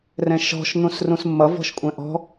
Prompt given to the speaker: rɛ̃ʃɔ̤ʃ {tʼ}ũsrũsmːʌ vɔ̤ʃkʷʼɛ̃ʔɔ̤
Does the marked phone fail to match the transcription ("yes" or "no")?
yes